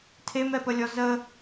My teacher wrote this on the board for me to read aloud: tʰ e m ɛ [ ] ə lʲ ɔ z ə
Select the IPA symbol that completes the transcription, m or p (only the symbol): p